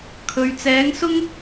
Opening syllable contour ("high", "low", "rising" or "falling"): low